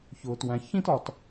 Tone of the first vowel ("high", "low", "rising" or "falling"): low